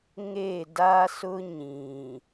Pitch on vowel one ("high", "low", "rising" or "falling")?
falling